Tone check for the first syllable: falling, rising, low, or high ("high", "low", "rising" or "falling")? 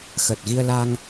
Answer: low